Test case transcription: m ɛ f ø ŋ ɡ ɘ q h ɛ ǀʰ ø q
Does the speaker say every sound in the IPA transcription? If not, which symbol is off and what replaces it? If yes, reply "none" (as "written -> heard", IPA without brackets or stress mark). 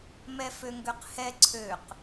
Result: ɘ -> ø